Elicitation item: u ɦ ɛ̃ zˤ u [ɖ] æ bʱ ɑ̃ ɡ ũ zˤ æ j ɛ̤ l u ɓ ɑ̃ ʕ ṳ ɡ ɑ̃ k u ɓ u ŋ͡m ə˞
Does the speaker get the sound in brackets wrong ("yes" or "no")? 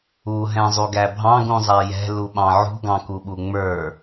yes